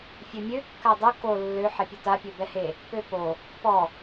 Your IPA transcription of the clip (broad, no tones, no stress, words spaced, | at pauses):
fʲømʲø kːadˤo ko lːø ħɛpʲota pʲøbɛhe | pøpo | pɔ